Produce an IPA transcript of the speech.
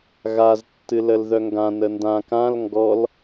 ɣaz tːɨləlðœŋɡã nəndã kãl ŋɡɔl

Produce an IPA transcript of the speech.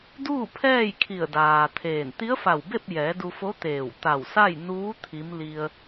duː˥˨pʰɛː˥˨jkʰi˧˩ə̯ daː˩ t̪ʰeː˧˩n t̪i˧˥ə̯fa˧˩wbe˥˨p̚jɛː˩˧ du˧fo˧˥t̪eː˧˩w t̪a˧˩wsa˥˨j nuː˧˥ t̪ʰi˧˥m li˧ə̯

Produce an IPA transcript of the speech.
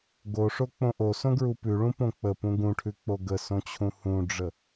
ɡoʂo k͡põʔosõɡɹu pʉɭũ põk͡pə pũɡũʈʰʉ k͡poɡəsõt͡ɕʰũ hũɖ͡ʐə

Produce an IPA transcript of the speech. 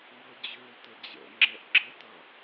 ŋɤd͡ʑøtə d͡ʑə̰ŋ͡ǁɛʔ ɡ͡ǁətʌ

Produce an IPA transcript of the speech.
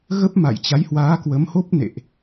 ɣə˦˥p̚ma̰˧˨jt͡ɕa˨˦j hwaː˨˦kwə˨˦mho˦˥p̚ nḛ˧˨ʔ

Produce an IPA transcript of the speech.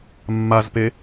mːazpe

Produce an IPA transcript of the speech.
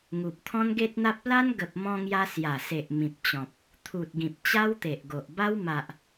ŋu˨p̚t̪ʰɔ̃˦nɡe˦t̚n̪a˦p̚ la˦nɡə˨p̚mɔ̃˧ŋja˧ sja˨˩se˨ʔ mĩ˨p̚ t͡ɕɔ̃˨p̚ | t̪ʰu˨t̚ɡĩ˨p̚ t͡ɕa˦wt̪e˨ʔɡo˨ʔba˦w ma˨ʔ

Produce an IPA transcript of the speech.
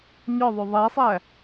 ɲɒðˤo ðˤæsˤæ

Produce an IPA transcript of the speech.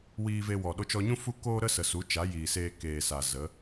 wiː˧ve˧wɔ˨ ɗo˧t͡ʃɔ˧ɲũ˦ fu˦koː˦ ɾə˦sə˨su˨˦ t͡ʃa˨˦jiː˨seː˧ keː˨sa˨ zə˨˦

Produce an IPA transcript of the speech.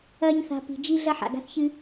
ɐː˦ɲθa̤˧ pi̤˨d͡ʒi˦ ɮɐ˦ħa̰˨ɡa̤˦θ çɨ˦

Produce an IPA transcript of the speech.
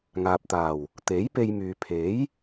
ŋaː˨p̚t̪aː˨˩w | t̪e˨˥jpe˧jmyː˨ pʰe˨˥j

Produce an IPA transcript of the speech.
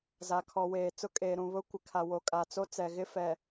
za˨kʰɔ˨ weː˨t͡sʊ˦kʼeː˨ ɾũ˨βʊ˦kʷɪ˨ kʰa˨ wo˨kʼa˨t͡so˦t͡sɛ˨ ɣɪ˦ fɛ˨

